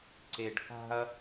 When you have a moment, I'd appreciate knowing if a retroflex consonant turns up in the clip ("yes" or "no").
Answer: yes